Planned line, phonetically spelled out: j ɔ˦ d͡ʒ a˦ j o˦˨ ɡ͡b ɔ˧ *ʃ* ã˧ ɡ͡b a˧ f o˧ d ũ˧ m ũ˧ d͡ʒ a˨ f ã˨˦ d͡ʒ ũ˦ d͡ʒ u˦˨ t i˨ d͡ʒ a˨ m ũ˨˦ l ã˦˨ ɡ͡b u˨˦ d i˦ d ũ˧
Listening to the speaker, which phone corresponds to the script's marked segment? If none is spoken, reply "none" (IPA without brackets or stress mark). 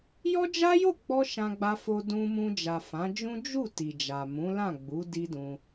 ʃ